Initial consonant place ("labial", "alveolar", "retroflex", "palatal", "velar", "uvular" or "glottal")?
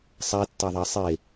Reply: alveolar